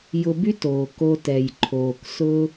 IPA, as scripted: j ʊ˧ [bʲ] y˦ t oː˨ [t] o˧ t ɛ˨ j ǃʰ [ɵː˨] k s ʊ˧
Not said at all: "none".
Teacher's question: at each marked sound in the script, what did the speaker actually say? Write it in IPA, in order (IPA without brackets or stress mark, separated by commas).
b, k, oː˨